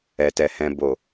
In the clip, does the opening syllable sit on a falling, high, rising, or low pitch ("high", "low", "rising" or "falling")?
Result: low